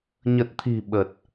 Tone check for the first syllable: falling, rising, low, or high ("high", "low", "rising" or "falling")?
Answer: low